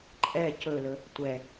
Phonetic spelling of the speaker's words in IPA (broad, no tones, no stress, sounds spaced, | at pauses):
ǃʼ ɛ c ɵ l ɵ | tʷ ɛ